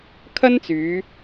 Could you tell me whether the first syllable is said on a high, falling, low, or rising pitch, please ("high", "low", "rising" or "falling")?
high